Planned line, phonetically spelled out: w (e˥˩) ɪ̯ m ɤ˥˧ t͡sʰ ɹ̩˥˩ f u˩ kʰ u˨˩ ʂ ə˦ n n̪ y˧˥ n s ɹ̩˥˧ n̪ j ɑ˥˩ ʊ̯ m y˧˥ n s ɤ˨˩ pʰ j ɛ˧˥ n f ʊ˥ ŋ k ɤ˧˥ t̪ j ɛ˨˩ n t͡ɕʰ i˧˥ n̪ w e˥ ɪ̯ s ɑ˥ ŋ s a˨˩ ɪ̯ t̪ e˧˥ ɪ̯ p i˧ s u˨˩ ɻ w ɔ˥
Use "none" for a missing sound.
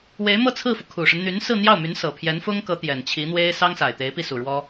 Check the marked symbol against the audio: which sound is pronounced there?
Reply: e˧˥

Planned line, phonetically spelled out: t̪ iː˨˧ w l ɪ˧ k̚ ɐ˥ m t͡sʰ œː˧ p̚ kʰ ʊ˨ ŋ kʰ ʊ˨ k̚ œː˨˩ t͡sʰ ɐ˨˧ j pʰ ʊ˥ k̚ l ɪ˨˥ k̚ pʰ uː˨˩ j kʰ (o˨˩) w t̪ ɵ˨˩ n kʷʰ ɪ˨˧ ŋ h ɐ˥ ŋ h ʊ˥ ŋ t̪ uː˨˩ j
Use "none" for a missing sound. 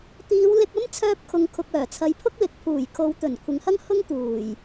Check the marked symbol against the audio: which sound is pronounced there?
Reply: o˨˧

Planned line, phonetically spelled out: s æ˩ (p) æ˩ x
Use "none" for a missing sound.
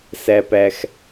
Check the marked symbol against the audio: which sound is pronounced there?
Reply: p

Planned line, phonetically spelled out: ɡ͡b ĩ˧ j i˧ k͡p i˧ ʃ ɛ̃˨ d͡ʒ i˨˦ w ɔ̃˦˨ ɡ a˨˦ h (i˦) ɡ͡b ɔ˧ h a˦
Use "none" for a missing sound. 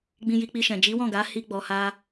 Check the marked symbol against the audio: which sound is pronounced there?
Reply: i˦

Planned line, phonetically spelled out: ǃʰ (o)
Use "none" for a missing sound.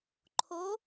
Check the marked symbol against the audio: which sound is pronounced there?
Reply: o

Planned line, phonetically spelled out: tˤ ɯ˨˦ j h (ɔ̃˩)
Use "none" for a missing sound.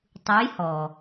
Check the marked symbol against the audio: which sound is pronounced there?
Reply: ɔ˩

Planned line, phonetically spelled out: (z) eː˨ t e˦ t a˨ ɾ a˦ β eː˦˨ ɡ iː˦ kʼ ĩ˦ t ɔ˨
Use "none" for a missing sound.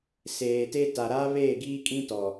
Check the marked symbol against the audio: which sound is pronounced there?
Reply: s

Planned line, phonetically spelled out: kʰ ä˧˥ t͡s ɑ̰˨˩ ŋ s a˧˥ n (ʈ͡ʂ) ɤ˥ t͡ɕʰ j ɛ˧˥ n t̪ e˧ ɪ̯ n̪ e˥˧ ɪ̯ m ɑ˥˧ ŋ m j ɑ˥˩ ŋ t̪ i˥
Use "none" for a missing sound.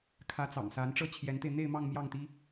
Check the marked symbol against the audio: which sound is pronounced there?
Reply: ʈ͡ʂ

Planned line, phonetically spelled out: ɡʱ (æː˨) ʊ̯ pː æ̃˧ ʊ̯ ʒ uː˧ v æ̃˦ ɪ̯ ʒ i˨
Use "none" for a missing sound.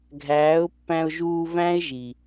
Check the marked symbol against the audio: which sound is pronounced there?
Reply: æː˨˦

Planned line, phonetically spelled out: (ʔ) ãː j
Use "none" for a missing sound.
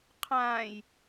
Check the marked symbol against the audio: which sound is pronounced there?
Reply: qʰ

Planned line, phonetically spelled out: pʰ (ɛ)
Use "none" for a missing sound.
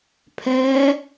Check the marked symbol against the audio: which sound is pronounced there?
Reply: ɛ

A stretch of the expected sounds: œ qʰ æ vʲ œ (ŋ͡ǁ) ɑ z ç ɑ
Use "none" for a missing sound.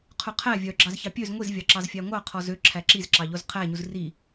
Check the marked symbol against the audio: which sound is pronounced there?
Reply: ɡ͡ǁ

